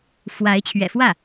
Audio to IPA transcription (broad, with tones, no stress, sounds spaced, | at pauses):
f w a˧˥ ɪ̯ t͡ɕʰ ɥ ɛ̰˨˩ f w ä˥˩